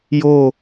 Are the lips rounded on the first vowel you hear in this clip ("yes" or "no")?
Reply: yes